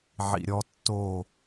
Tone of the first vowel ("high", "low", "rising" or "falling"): low